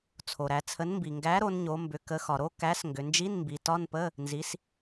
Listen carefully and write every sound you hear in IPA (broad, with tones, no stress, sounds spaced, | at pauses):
t͡sʰ o˩ ɾ æ˩˧ t͡sʰ ə˨˥ n m b i˩ ŋ ɡ æ˨˥ ɾ o˩˧ n ɲ o˩˧ m b ʏ˩˧ k ə˩˧ x ɒ˩ ɾ o˧˥˧ k æ˨˥ s ŋ ɡ ʏ˩˧ n d͡ʒ i˧˥˧ n m b i˩˧ t ɒ˧˥˧ n p ə˧˥˧ | n z i˨˥ s